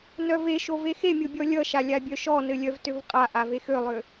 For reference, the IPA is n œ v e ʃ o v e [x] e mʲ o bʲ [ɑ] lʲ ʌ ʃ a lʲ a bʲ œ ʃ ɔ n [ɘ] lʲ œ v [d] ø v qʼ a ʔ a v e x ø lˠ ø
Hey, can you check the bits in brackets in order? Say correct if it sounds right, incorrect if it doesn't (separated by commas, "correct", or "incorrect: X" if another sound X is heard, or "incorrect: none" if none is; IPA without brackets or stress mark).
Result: correct, incorrect: ɔ, correct, incorrect: t